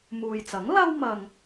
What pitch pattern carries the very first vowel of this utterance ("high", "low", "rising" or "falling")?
low